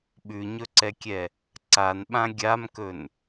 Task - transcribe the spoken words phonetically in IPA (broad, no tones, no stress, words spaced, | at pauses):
ɓʉɲɵǀɛkʲɛ | ǀanɓã ɡʲamkɵn